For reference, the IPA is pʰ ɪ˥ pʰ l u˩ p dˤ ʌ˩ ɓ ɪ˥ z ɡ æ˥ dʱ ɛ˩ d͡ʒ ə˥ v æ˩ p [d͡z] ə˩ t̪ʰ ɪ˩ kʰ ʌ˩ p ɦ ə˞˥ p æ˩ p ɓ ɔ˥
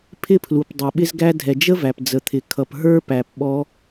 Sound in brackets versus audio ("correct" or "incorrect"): correct